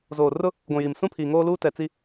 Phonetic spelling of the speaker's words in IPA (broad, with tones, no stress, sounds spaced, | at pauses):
z oː˨ r ʊ˦ | ɡʷ ũ˨ j i˨ m s ũ˦ pʰ iː˨ ŋ oː˦ l uː˦ t ɛ˨ t͡s i˦